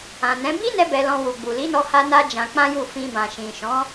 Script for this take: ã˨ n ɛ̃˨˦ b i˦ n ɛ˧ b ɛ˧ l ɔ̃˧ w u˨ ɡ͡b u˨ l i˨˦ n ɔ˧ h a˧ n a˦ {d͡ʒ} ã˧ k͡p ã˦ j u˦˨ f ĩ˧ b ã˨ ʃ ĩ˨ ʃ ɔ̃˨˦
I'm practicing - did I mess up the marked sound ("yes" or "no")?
no